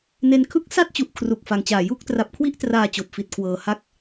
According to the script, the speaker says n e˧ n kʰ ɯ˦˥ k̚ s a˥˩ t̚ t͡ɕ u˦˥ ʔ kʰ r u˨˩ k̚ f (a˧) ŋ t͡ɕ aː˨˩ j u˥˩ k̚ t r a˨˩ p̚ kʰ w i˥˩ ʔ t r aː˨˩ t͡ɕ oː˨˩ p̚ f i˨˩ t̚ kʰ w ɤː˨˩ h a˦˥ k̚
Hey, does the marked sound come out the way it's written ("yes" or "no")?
yes